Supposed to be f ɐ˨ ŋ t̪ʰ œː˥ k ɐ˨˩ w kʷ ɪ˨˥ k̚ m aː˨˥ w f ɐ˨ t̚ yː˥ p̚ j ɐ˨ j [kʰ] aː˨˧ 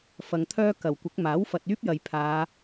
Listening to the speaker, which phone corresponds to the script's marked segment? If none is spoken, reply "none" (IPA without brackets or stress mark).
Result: pʰ